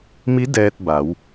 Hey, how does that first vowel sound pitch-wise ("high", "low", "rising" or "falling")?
rising